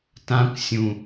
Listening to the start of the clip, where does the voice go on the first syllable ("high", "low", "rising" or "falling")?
low